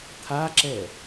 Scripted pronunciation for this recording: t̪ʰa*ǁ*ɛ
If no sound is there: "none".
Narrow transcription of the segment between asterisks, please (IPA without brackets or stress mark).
ǁ